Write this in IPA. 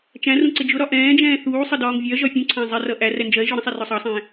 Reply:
t͡ʃæ̃rũ ǀɪd͡ʒʊɾɒ ʔɛ̃ːd͡ʒɛ̃ː θuːsˤə dɒːŋvʲɜʒɒ fʲũǀʰæ̃ zˤɪrʌ ʔær ɛnd͡ʒɜe̯ʒɔ ɾə̃sˤɛ rɔsˤɑsˤɛ̃ː

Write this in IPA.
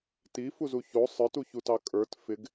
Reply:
tifuzu ço sˤə˞tuçutɑ kʼə˞t fɪɡ

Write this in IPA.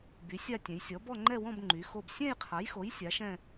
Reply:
by˨˥sʲa˥˧ tʲɛ̃˨˥j sʲɔ˨˥bɔ˥˧ŋ͡ǃɛ˥˧wɔ̃˥˧b ŋ͡ǃy˨˥xo˥˧b sʲɛ̃˥˧jqʰa˨˥jxo˨˥j sʲa˨˥ʃɛ̃˥˧

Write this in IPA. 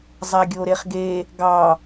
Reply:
zˤaɡʲoɾeχɡe | ɡɑ

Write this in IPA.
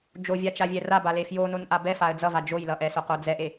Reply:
d͡ʒovʲat͡ʃavʲɛ rabale fjo nonʔabɛ faə̯d͡zʌva d͡ʒojlʌʔɛsoq od͡zɛʔe

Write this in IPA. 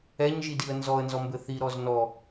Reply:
ɛɲʒidiə̯ nzɔə̯nzɔmbɘ θiɾɔz nɔ

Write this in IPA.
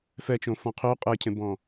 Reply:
fɛt͡ʃõ fɔ̃qʰy qʼecʰẽbɔ̃

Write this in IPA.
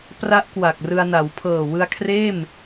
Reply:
pra˦˥ʔkwa˨˩k̚rɯ˧a̯na˩˦w pʰɤː˨˩wɯ˧a̯ kʰreː˥˩m

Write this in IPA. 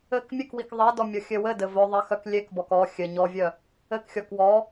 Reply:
ɘk mʲɘkwik ðˤedɔ mʲɔxʲɘwɘdɘ vœðˤe xœklʲekbɔk ɔ xʲɘ ɲɔvʲœ | ɘkxʲɔk wɔ

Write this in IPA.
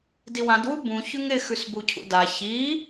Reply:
diwãd wubũ çʉŋɾɪ xʉsbucʰṵda çi

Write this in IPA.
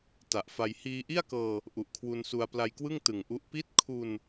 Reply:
ta˨˩ʔfa˧j hiː˧ʔi˥˩a̯kɤː˧ | ʔu˨˩ʔkʰwu˧nsu˧a̯ pla˧jkwɯ˥˩ŋ tɯ˨˩ŋʔu˦˥ʔ pi˦˥t̚kʰu˧n

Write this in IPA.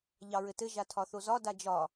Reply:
ʎɑɹɘtɘ ʒatʰɒθozɒ dad͡ʒɒ

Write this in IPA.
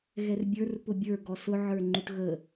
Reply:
ɣɛrbʲə˞r pʊbʲə˞ ɡɔsʊ ʕə˞ŋ͡ǃuʈɣə

